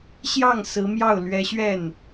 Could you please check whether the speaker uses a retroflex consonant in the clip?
no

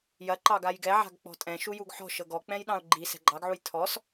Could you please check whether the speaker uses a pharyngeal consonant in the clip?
yes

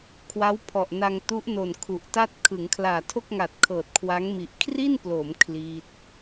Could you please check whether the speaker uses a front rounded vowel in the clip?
no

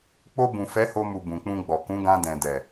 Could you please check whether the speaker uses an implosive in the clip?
no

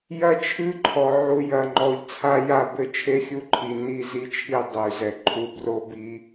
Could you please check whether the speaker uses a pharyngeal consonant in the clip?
yes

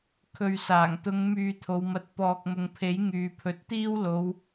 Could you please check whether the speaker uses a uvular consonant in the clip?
no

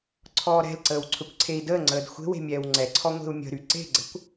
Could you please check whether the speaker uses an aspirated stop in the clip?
yes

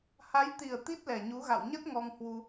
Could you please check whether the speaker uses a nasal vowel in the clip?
no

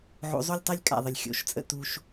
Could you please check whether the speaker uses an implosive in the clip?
no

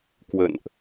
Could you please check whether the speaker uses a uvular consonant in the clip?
no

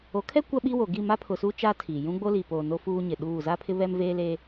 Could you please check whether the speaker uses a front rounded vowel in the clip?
no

